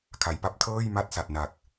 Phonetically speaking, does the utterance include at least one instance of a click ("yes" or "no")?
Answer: no